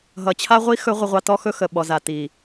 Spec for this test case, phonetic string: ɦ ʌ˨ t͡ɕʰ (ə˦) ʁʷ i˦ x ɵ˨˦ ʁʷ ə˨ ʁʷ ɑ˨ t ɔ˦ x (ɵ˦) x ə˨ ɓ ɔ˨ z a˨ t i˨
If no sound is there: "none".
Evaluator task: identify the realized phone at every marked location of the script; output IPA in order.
a˦, ɵ˦

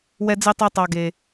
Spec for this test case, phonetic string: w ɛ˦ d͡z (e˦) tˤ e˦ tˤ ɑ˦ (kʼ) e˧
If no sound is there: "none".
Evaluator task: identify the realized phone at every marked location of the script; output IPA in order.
i˦, ɡ

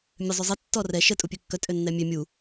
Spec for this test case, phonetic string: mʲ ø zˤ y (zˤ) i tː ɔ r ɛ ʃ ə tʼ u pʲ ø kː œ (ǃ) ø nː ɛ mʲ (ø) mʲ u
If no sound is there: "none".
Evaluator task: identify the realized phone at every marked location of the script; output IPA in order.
zˤ, tʼ, ø

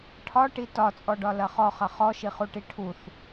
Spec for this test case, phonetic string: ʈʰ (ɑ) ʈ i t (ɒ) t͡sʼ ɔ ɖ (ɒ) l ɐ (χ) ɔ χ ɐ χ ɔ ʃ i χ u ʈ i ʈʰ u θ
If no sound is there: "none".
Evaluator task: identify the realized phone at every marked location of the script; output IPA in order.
ɒ, ɒ, ɒ, χ

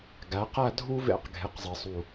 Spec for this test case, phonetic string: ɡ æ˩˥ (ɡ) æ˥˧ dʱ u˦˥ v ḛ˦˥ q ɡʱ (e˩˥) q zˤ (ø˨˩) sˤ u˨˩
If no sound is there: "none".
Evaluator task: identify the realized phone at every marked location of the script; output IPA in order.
q, e˩˥, e˨˩

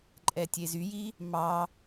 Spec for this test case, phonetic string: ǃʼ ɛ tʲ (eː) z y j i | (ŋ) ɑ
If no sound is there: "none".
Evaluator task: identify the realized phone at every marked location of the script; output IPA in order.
e, m

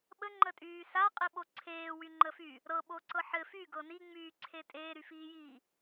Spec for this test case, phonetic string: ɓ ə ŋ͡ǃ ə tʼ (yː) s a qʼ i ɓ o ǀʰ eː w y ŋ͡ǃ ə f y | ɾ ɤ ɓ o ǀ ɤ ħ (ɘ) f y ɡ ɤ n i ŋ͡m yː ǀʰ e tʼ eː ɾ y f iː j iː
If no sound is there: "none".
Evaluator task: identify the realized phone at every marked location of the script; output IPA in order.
yː, ɘ

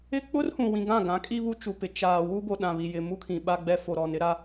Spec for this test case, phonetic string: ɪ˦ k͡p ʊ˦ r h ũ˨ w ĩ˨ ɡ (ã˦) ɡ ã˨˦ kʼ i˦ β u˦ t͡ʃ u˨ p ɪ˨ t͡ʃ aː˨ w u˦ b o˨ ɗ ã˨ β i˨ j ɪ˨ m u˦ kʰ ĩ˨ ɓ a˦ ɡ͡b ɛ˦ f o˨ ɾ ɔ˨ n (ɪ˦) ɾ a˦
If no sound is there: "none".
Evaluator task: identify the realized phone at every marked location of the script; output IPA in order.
ã˦˨, ɪ˦

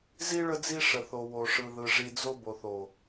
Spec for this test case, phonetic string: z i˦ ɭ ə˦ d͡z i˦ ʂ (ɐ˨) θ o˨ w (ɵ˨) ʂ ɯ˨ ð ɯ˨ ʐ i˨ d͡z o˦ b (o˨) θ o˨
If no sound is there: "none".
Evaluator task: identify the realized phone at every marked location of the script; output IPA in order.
ə˨, o˨, o˨

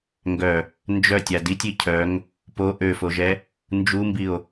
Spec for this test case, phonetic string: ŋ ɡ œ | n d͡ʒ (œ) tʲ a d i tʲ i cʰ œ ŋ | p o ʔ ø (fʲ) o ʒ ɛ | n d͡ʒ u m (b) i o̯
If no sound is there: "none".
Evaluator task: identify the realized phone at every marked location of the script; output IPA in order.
œ, f, b

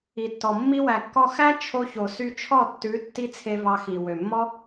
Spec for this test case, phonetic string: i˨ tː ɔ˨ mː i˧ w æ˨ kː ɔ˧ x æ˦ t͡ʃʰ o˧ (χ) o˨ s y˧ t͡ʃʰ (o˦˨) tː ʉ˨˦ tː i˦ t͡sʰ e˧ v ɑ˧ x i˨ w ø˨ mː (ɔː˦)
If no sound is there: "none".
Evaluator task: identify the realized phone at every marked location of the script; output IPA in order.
ç, ɔ˦˨, ɔ˦

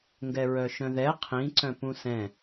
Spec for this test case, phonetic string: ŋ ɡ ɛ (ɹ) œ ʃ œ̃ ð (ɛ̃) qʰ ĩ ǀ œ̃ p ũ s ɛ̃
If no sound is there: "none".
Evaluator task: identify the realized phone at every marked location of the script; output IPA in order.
ɹ, ɛ

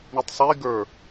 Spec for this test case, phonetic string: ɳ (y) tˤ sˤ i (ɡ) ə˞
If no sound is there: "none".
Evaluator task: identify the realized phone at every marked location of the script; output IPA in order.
i, ɡ

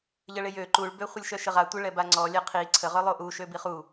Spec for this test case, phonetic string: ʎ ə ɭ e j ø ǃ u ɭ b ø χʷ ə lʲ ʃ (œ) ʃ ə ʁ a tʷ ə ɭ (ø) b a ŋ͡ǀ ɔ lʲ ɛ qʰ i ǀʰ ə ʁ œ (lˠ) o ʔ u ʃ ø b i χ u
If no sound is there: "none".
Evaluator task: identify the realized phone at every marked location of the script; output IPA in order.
œ, ɛ, lˠ

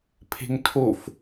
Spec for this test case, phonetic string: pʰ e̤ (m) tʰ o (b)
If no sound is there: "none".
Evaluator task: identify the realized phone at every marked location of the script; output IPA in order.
ŋ, f

